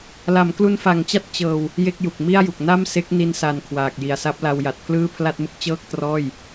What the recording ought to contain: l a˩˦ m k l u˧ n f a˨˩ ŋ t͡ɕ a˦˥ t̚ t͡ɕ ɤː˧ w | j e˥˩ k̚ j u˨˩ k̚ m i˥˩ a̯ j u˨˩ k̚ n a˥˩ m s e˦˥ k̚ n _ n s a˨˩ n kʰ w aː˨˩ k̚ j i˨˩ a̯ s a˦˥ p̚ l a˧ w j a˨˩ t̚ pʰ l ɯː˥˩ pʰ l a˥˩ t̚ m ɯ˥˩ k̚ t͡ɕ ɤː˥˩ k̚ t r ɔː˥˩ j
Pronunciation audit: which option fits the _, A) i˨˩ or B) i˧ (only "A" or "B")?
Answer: B